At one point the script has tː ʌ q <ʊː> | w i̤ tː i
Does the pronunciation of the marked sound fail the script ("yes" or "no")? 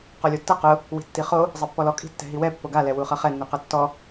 yes